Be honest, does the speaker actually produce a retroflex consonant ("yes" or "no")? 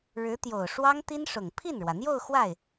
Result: yes